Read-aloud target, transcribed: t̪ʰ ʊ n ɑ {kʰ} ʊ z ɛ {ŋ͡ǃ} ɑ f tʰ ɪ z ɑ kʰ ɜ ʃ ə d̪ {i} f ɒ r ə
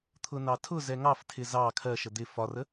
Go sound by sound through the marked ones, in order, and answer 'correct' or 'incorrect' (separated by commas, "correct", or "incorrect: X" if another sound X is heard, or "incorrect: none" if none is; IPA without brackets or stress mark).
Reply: incorrect: tʰ, incorrect: ŋ, incorrect: ɪ